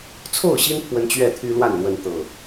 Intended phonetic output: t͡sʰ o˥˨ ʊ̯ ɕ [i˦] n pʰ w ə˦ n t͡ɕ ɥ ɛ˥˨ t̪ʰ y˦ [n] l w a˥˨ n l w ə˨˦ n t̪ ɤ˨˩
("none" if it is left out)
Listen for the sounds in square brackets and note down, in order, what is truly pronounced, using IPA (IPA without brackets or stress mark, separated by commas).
i˦, none